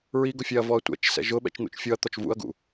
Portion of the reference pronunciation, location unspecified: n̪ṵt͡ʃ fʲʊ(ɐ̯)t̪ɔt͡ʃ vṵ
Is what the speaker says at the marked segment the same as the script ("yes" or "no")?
yes